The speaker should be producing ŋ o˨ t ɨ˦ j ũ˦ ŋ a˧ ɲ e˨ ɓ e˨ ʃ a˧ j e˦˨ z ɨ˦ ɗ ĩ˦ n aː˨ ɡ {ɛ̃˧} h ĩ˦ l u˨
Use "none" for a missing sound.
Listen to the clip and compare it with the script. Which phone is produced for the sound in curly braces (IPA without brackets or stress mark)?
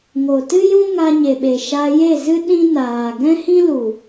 ɛ̃˦